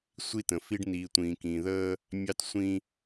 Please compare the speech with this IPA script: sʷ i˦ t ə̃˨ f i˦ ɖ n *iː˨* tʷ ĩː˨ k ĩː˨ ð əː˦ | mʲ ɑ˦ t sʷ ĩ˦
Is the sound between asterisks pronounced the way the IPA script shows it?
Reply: yes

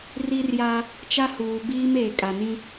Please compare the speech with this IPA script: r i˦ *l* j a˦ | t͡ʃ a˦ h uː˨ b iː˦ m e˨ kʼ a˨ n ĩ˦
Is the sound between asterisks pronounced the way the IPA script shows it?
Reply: no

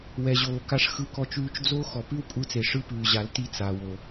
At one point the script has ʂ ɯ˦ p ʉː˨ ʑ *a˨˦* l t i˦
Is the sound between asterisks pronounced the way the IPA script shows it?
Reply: yes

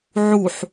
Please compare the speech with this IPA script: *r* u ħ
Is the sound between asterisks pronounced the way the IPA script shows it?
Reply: no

